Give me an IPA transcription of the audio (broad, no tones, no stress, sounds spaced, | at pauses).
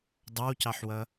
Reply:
dˤ ɑ w c ɑ ħ w ʌ